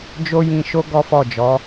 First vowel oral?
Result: yes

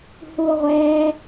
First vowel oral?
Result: yes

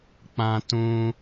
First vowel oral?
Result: no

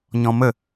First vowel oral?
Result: no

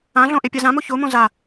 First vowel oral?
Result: no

